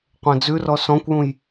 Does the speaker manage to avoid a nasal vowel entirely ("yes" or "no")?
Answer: no